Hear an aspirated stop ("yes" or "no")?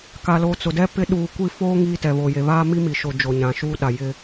no